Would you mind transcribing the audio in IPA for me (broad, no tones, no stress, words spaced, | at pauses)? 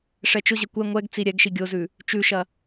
ʂɛt͡ʃʊʑɛ kʷɛ ŋʷɛɡ t͡siɾʲɛɡʃi ɡʲʊzʉ | t͡ʃʉʃɐ